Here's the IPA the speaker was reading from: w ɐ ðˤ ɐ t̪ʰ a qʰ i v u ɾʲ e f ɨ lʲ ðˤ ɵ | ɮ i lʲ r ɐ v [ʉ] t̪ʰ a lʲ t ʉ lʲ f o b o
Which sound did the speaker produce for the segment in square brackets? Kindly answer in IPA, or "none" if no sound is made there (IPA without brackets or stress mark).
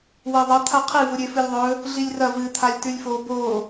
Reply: ɨ